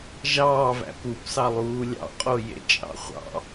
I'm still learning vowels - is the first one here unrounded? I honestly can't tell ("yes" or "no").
yes